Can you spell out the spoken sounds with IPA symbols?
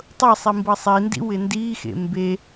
tˤɤsˤi mbɤsˤindḭ wɪndixḛ mbe

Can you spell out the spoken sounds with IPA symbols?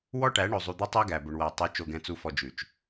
wɔ˦ʈæ˨˦ ɳo˨zˤu˨d̪e˦ tˤæ˦ɡæ˨bɵ˨ɳ wæ˨ tˤo˨˦ t͡ʃo˨ɡɛ̃˨t͡su˨fɔ˨ d͡ʒʉ˨t͡ʃ

